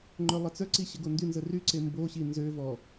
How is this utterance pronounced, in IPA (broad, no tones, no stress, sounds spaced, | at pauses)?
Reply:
ŋ͡ǃ œ lˠ ə t͡s œ ǀ i ɕ ə ɡ o n d y n z ə r y ǀ e m b o ɕ i n z ø v ɔ